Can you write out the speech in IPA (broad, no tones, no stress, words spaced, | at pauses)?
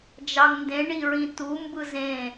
d͡ʒɑŋndẽ ɳiɹĩtu mbɯzẽ